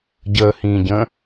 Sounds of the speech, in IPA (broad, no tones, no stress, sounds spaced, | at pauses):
ɟ əː h ĩː ɟ ə̃ː